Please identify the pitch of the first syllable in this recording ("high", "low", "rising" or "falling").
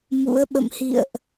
rising